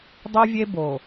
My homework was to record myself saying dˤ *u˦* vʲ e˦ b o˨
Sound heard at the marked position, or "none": u˦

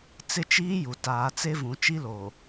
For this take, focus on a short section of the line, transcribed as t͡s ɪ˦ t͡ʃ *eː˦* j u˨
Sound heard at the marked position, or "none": iː˦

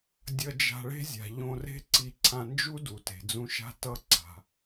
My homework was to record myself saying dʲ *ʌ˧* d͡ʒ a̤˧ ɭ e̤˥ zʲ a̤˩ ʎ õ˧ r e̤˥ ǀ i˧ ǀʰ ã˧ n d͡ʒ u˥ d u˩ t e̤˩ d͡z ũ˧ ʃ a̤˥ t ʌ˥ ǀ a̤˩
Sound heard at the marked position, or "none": ʌ˧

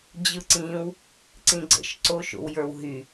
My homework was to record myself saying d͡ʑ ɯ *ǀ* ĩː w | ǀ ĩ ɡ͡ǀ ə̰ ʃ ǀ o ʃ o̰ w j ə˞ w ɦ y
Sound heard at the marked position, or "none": ǀ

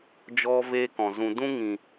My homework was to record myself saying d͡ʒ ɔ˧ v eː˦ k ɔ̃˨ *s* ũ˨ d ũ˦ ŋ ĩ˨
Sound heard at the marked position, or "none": z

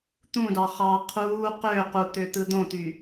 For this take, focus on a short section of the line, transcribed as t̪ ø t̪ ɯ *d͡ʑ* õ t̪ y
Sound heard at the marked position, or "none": d̪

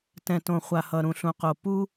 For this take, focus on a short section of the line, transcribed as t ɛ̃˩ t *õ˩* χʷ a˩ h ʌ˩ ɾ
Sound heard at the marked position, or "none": õ˩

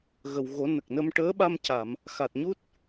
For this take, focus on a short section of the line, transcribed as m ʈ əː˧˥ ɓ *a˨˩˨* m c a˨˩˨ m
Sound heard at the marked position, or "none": a˧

